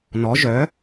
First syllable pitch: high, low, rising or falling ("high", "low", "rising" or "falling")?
rising